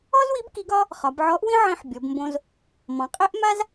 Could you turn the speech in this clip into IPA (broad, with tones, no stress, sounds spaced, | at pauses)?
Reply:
ɔ˥ z w i˧˥ b k i˧˥ ɡ ɒ˥ | χ ɒ˩˧ b ʕ ɔ˧˥ ʔ w ĩ˥ ʕ ĩ˧ ħ bʲ ɔ˩˧ b m b õ˧ z | m ɔ̃˩˧ qʼ e˥ ʔ m a˥ z